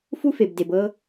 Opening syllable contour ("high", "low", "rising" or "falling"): high